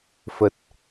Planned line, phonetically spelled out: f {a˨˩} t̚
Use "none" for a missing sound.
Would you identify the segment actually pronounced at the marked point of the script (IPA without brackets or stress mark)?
ə˨˩